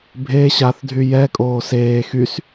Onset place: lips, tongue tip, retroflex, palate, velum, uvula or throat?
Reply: lips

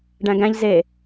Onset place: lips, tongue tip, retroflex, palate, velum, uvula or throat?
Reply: retroflex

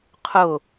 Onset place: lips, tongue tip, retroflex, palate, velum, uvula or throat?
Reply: uvula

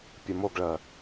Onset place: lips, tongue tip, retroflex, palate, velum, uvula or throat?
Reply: lips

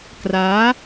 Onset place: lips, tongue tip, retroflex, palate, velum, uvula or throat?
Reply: velum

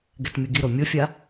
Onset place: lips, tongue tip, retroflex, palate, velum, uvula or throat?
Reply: velum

